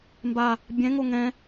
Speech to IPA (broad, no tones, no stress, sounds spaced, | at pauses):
m b a | bʲ ɛ̃ ŋ o ŋ ɛ̃